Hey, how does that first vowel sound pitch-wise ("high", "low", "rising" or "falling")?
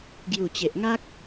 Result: low